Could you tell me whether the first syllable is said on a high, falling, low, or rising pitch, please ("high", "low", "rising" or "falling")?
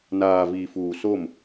low